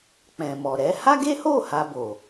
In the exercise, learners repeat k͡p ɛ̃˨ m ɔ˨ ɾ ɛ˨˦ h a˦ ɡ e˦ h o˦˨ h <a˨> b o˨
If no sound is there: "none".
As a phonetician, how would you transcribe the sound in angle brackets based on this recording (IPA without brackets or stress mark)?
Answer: a˧